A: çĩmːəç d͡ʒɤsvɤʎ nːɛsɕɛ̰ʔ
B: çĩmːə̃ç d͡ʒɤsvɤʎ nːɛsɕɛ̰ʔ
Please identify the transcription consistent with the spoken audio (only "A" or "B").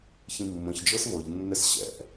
B